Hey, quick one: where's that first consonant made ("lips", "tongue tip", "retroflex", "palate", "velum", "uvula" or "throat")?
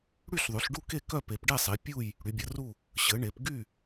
retroflex